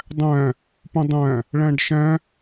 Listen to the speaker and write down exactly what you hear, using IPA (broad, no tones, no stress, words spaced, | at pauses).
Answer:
dˤæ̃ | pũdˤæ̃ | ɭæ̃ɖʃæ̃